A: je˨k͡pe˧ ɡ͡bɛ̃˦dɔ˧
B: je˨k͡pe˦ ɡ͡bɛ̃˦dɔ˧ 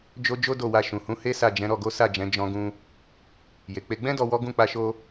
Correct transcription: A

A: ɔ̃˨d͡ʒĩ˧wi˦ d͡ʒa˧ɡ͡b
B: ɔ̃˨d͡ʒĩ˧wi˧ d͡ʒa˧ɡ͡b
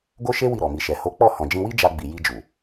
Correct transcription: A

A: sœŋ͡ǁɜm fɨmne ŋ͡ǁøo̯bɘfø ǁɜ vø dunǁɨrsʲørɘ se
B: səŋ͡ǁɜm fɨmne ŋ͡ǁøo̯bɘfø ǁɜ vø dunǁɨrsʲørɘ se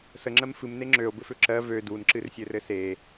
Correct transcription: B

